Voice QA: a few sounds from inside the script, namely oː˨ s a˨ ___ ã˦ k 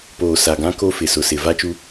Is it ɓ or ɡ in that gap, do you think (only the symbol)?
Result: ɡ